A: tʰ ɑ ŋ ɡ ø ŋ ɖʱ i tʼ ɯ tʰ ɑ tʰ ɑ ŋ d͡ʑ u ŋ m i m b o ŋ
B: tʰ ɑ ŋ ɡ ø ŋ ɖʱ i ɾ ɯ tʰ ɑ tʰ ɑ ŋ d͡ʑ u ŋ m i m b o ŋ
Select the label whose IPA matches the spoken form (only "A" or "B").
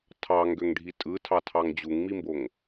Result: A